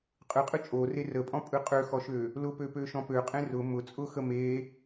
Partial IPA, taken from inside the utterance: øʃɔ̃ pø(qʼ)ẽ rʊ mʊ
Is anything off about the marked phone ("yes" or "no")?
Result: no